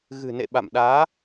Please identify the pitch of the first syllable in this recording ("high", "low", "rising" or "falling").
low